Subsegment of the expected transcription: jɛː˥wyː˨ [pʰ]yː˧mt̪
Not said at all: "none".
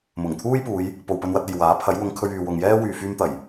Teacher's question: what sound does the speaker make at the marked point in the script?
f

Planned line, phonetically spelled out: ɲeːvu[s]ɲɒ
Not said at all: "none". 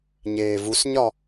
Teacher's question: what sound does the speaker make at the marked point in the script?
s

